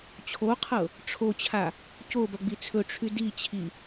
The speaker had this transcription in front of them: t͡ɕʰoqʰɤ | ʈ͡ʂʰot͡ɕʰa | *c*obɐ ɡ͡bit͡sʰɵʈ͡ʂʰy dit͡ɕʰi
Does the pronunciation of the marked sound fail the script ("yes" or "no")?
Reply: no